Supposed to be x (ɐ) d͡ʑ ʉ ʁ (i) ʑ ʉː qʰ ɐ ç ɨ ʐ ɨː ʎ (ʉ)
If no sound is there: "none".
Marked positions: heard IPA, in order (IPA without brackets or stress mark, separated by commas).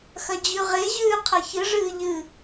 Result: ɐ, e, ɨ